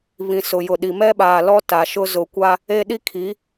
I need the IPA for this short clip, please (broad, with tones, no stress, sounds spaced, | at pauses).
β ĩ˨ s ʊ˨ j ʊ˨ ɗ i˨ m ɛ˦ ɓ aː˨ l ɔ˦ t a˨ ʃ ʊ˦ z ʊ˨ kʷ a˦ | e˦ ɗ i˦ kʰ i˨˦